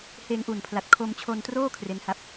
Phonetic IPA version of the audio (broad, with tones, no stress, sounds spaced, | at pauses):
h eː˧ ŋ ʔ uː˨˩ n pʰ l a˨˩ t̚ kʰ o˧ m t͡ɕʰ o˧ n t r oː˥˩ kʰ r e˦˥ n h a˥˩ p̚